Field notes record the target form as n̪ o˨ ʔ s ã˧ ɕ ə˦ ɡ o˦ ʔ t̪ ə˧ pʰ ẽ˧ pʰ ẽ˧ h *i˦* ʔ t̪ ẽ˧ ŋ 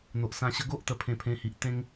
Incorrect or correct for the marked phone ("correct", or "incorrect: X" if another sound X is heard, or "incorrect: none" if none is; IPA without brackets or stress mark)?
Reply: incorrect: i˨